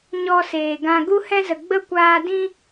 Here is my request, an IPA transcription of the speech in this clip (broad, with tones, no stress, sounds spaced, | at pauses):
ɲ ɔ˧ s eː˨ ɡ ã˧ ɡ u˦ h ɛ̃˦ z ə˨ ɡ͡b ə˦ kʷ aː˧ d ĩ˦